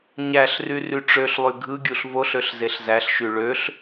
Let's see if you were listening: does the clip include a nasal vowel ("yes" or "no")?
no